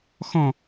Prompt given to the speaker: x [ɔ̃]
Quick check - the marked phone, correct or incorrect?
correct